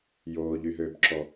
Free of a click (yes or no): no